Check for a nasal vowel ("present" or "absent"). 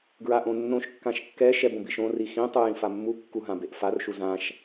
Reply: present